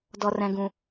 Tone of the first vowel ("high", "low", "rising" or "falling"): high